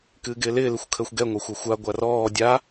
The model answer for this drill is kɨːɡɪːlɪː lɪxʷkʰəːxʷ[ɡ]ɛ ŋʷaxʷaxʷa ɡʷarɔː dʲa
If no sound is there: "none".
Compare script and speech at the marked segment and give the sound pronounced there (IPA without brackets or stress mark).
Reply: ɡ